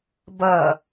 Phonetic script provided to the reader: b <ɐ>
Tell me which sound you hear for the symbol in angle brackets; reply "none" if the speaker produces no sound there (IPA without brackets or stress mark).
ɐ